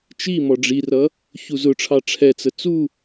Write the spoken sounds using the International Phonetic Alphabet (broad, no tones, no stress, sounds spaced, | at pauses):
t͡ʃ i m ɔ ɖ͡ʐ i r ʌ | ç u z ʊ ʈ͡ʂʰ ɑ ʈ͡ʂʰ ɛ t͡s ə t͡s u